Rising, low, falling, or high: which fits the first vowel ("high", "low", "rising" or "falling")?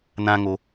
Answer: high